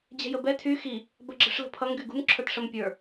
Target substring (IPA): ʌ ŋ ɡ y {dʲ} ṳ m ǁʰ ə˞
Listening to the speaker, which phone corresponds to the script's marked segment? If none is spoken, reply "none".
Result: ɡ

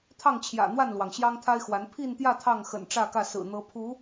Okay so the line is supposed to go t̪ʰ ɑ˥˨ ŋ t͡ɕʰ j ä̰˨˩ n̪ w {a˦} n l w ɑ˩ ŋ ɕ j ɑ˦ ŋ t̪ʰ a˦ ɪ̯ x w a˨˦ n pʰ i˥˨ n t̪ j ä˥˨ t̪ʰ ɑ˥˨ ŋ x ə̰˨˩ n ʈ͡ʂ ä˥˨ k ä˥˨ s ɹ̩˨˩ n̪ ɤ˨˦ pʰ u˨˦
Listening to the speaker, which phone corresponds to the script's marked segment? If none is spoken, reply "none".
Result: a˥˨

